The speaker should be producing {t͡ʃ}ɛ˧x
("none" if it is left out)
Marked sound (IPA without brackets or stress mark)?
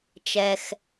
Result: t͡ʃ